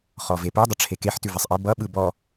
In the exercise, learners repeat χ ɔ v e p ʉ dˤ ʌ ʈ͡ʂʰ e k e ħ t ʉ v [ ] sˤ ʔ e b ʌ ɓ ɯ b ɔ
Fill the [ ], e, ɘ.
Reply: e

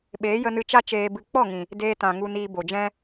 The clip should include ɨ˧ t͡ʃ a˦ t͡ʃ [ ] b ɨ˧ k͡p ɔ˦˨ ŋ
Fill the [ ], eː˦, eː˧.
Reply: eː˧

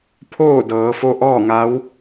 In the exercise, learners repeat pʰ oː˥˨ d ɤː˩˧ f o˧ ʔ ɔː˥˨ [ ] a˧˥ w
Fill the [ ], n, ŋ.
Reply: ŋ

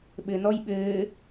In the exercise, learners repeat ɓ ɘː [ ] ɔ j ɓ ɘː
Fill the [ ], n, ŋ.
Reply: n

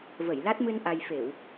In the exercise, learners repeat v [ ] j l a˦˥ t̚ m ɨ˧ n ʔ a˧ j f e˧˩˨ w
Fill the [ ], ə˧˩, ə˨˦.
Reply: ə˧˩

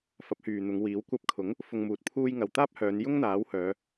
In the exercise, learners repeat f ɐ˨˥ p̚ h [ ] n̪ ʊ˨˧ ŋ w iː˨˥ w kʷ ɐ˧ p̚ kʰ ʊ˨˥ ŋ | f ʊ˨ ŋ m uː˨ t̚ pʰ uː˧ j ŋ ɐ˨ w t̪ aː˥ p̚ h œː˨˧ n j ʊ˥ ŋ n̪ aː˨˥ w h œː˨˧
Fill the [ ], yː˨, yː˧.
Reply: yː˨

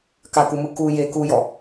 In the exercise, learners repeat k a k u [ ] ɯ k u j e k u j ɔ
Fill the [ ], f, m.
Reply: m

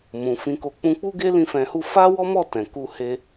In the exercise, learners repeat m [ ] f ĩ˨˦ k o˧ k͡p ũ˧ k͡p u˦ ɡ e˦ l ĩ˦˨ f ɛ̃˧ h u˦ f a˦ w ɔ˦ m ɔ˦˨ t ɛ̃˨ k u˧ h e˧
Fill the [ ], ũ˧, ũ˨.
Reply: ũ˨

